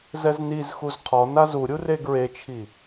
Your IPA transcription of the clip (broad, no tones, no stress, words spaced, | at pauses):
zɛznizxuz qʰɔ nazuɾʲu reɡɹet͡ʃʰi